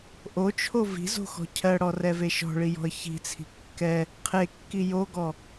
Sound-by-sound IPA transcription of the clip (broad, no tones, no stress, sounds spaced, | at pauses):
ʔ o t͡ʃʰ o v i̤ z o̤ x ɔ̤ cʰ ɜ ɽ ɔ r ɛ v e ʃ ɔ̤ ɭ i j ɔ̤ ə̯ ç i̤ t͡sʰ i̤ kː ɛ | qʰ e kː i j o ɡ ɔ